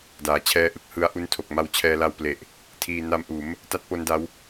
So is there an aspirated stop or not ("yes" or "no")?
yes